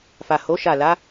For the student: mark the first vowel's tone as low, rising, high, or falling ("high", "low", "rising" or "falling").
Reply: low